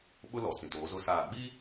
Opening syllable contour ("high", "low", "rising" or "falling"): high